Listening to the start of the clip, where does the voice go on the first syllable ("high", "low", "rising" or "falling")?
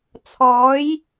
rising